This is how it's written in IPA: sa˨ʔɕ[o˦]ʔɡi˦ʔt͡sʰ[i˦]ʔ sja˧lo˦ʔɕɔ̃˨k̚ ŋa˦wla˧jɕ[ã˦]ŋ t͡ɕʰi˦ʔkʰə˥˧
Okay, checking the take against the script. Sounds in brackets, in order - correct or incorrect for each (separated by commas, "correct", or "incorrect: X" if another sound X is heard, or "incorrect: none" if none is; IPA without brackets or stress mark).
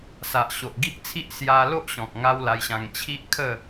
incorrect: o˨, correct, incorrect: ã˧